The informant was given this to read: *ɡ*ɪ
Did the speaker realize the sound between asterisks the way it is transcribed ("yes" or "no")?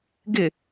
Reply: yes